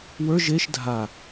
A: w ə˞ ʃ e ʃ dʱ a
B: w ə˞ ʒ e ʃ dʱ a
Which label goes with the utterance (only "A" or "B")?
B